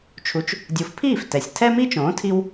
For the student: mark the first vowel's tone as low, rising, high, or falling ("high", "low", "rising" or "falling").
rising